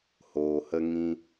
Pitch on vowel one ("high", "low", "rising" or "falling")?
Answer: low